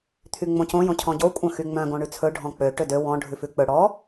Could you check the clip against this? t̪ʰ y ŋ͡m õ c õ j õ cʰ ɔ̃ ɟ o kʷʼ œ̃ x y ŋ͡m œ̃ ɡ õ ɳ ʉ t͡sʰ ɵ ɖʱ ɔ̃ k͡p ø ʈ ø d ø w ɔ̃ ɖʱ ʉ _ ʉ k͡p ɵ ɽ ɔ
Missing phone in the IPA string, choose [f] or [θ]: f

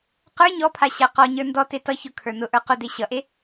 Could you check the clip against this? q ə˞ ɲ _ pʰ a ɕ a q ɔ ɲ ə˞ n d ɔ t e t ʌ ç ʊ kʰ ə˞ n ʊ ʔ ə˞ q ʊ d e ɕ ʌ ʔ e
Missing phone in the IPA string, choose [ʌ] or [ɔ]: ɔ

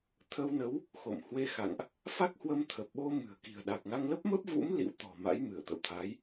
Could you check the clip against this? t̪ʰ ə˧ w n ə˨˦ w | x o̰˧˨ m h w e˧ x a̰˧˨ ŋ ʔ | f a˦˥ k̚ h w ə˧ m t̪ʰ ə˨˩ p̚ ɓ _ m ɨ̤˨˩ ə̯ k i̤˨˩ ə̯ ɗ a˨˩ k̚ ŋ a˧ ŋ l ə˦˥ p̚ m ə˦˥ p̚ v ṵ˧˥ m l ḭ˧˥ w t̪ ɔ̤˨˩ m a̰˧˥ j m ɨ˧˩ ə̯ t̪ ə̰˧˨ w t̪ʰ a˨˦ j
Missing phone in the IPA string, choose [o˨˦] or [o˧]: o˧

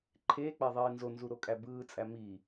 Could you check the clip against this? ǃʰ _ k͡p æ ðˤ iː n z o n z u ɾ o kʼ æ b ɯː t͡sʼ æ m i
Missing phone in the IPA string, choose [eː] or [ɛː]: eː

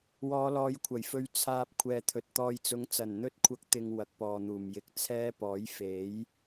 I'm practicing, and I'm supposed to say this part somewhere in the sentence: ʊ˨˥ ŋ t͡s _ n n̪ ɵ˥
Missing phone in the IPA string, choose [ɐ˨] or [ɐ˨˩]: ɐ˨˩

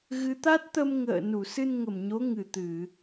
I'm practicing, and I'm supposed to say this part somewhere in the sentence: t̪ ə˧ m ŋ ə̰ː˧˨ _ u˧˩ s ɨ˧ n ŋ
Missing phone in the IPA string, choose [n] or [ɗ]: n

